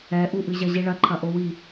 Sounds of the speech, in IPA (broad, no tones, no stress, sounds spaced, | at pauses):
ɛ ʔ u ʔ ɨ ʑ ɐ ʑ i ɭ ɐ ǃʰ ɐ ʔ o w i